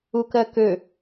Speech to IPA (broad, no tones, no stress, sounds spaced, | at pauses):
u k ɜ k ø